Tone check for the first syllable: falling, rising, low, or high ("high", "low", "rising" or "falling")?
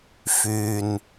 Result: low